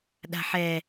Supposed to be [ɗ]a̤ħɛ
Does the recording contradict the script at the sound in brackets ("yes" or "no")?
no